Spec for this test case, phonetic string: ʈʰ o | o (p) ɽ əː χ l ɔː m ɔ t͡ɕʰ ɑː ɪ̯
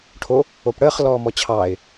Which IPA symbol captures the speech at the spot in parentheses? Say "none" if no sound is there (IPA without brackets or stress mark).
p